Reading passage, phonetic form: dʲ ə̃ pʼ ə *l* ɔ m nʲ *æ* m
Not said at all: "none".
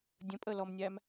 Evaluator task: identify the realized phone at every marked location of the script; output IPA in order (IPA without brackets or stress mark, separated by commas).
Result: l, æ